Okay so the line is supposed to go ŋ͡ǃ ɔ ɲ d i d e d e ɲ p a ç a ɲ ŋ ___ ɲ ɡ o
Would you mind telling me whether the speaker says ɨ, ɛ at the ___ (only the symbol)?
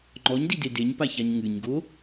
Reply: ɨ